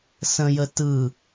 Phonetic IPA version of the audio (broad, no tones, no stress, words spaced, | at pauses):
sə̃jə tɯ